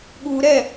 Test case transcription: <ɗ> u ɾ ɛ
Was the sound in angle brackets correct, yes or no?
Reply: no